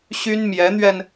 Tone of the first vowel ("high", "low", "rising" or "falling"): high